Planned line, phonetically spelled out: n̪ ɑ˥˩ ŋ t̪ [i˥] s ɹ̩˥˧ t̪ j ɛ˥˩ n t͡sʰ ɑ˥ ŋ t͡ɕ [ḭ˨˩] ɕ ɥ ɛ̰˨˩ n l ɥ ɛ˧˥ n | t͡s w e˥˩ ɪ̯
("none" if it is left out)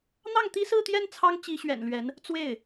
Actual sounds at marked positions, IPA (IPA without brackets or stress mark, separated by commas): i˥, i˧˥